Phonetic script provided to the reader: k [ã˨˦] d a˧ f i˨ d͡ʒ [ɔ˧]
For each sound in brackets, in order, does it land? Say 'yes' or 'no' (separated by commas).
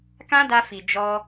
no, yes